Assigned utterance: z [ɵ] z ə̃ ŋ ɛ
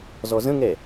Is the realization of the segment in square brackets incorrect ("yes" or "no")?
yes